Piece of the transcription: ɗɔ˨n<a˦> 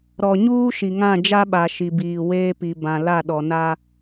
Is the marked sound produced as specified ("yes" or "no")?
yes